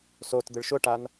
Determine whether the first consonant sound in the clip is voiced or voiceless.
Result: voiceless